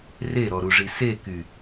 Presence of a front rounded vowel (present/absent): present